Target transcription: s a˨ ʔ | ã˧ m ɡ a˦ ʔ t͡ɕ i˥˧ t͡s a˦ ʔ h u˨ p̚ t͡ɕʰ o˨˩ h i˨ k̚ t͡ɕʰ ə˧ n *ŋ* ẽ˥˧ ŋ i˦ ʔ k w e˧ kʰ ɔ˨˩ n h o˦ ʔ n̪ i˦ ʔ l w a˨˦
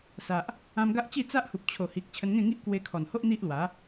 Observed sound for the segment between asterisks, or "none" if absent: ŋ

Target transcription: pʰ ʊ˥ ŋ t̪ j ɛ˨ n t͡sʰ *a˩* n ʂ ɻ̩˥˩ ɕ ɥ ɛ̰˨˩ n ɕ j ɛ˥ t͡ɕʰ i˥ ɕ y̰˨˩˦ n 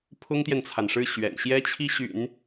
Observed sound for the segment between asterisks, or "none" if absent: a˩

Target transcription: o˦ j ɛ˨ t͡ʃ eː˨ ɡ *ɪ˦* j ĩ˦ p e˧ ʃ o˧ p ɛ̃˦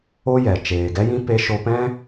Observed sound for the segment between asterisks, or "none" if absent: ɛ˦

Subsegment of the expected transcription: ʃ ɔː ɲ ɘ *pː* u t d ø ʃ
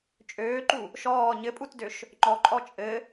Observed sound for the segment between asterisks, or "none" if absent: pʼ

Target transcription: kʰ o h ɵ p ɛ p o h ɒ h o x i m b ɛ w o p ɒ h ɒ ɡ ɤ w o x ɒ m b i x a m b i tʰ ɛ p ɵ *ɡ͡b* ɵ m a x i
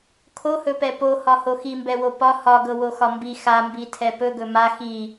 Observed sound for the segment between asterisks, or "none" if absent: ɡ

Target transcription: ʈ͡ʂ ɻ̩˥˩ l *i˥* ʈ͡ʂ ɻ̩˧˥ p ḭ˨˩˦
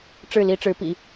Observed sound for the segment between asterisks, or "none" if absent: i˥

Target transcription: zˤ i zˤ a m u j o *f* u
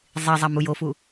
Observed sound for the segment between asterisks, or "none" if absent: f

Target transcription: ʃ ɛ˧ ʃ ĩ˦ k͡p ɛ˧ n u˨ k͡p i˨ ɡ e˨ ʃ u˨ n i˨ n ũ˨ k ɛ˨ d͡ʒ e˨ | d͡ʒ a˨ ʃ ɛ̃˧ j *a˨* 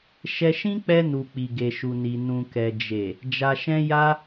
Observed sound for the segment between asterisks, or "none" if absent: a˧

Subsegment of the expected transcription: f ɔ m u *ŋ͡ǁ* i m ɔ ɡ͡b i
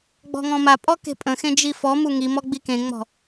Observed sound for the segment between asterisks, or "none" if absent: ŋ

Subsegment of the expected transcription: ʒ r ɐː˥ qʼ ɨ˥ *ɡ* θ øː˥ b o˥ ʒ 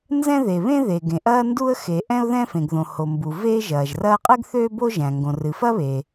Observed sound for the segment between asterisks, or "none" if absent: ɡ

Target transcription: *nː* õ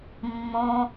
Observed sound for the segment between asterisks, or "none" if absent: mː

